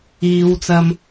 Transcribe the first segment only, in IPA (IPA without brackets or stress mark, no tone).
iː